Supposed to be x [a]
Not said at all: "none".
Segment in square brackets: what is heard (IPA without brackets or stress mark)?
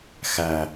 æ